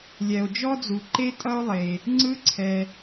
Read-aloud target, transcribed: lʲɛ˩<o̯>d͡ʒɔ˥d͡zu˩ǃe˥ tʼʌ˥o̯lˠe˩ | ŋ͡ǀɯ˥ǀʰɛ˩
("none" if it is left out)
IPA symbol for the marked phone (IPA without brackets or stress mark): o̯